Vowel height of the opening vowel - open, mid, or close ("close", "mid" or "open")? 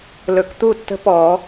mid